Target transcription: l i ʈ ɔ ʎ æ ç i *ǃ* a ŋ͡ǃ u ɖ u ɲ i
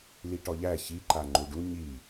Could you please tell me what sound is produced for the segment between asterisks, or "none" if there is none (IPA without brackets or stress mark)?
ǃ